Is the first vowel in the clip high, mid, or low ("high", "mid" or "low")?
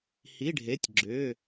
high